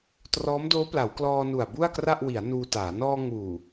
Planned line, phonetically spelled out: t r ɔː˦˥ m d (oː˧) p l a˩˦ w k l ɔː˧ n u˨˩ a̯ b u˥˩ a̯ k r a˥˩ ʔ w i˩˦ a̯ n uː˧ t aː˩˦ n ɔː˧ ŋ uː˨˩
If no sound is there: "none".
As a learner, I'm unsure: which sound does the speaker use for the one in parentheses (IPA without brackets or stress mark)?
oː˦˥